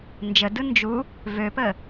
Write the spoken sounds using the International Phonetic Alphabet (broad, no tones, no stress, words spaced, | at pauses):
nd͡ʒədɯ nd͡ʒu | vøpə